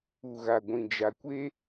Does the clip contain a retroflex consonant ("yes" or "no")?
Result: no